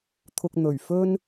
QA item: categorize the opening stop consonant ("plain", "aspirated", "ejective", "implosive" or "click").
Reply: aspirated